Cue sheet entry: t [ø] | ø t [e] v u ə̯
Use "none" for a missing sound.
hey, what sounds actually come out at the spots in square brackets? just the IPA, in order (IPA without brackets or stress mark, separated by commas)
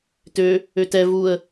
ø, ɛ